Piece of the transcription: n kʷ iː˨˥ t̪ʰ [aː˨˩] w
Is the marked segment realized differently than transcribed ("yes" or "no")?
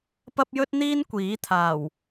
no